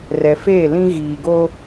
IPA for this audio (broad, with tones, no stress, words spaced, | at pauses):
rɛ˨feː˦˨lĩ˦ ɣiː˨ɡoː˦